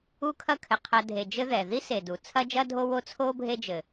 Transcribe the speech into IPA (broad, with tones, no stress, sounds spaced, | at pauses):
u˦ kʰ ɐ˦ kʰ ɘ˩ qʰ ɐ˨ dʱ e˩ d͡ʒ ɘ˦ ð ɛ˩ ð i˥ s e˩ d u˩ t͡sʰ ɐ˦ d͡ʒ ɐ˦ dʱ o˦ w o˥ t͡sʰ o˥ bʱ e˦ d͡ʒ ɘ˩